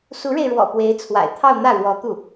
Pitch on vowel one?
rising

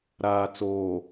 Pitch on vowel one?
low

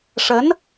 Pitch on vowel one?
rising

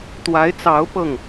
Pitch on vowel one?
rising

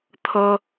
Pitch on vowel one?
high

